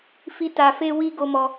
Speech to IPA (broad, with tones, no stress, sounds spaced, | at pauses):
f i˧ t a˨ f e˧ w i˧ ɡ o˦ m ɔ˧